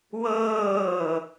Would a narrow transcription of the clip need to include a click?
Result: no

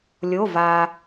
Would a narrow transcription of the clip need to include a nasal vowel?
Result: no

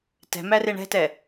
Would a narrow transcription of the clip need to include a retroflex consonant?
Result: yes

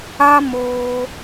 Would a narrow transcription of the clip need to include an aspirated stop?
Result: no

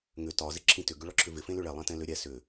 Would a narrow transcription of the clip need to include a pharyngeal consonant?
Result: no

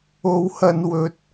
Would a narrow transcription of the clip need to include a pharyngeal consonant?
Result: no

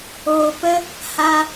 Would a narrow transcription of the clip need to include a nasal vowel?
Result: no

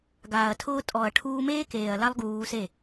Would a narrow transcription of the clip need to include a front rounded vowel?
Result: no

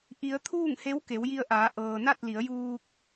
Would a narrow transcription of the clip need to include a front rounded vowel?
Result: no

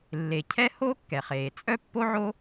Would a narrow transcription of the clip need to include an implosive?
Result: no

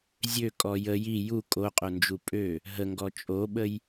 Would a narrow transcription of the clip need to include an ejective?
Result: yes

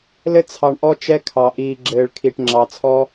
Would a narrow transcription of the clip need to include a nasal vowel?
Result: no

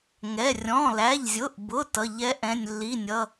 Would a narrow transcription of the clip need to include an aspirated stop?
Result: no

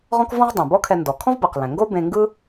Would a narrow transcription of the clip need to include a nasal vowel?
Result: yes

